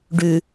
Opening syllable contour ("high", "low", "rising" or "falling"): low